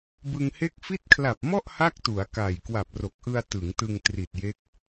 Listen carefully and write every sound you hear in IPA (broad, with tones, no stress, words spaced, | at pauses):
bɯ˧ŋhe˥˩k̚ fi˦˥t̚kʰla˨˩p̚mɔ˥˩ʔ ha˥˩k̚tu˩˦a̯ka˨˩j kwa˨˩p̚ro˨˩k̚ʔɯ˧a̯ tɯ˩˦ŋtɯ˧ŋ tri˨˩t̚je˦˥k̚